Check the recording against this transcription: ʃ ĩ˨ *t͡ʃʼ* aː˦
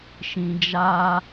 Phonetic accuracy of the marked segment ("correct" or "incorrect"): incorrect